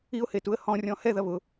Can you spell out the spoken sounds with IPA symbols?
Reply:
i ʊ̯ h e t u ə̯ h ɔ̃ rʲ ɔ̃ h ɛ ð ɐ β ʊ

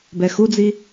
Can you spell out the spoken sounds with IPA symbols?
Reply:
b ɛ x u d͡z i

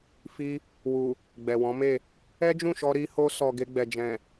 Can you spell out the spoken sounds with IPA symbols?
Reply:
f i˧ | w u˨ | ɡ͡b ɛ˨ w ɔ̃˨˦ m e˦˨ | ɛ˦ d͡ʒ ũ˦˨ ʃ ɔ˧ ɾ i˧ h o˧ s ɔ˨ ɡ e˧ ɡ͡b ɛ˨ d͡ʒ ɛ̃˨

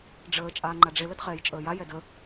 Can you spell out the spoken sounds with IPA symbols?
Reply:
ɖ͡ʐ əː t͡ʃʼ aː ŋ͡ǃ a ɖ͡ʐ e l ə d χ ɛː j t͡ʃʼ əː j a j ɛ d ə

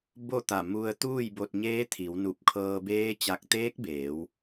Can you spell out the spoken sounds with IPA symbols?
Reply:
b o˥˨ t̪ a˧˩ m u˧ ə̯ t̪ uː˥˨ j b o˧ t̚ ɲ eː˧˥ t̪ʰ i˩˧ w n u˧˩ p̚ kʰ ɤː˧ b eː˧˥ t͡ɕ a˧˩ k̚ t̪ eː˧˥ k̚ b eː˩˧ w

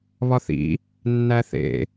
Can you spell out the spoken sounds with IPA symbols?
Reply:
β ɒ θ ḭ | nː æ θ ḛ

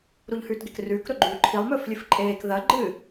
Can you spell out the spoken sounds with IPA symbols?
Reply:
ɾ u ʎ h ʉː t ɡ e k r ʉː k ɾ ɵ ɡ͡ǃ ʉː ǃʰ i lˠ m ɵː f lʲ ɨ f ǃʼ eː k ð ɐ ɡ͡ǃ ɨ

